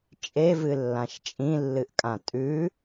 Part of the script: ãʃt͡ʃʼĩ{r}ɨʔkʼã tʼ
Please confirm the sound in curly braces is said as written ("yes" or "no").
no